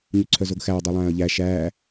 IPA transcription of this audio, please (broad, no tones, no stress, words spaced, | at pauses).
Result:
ɲʉǀʰœzoɡxæw dˤœlˠæ̃ːə̯ʎæ ʃæː